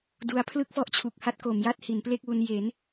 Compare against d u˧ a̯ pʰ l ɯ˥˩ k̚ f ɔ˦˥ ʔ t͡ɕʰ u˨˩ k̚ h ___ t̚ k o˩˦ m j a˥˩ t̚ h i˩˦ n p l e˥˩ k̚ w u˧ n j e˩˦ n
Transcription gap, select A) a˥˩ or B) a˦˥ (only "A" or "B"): B